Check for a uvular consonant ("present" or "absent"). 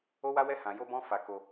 absent